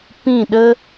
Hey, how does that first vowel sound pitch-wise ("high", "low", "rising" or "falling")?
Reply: falling